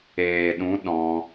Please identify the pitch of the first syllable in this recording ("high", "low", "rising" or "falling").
low